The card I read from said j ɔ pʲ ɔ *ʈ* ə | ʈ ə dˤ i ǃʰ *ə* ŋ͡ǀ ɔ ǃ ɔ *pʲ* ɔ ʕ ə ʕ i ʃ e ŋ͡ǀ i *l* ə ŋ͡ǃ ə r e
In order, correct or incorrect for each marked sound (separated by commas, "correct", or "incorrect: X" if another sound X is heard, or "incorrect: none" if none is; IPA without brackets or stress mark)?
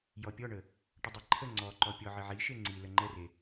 incorrect: ɳ, correct, correct, correct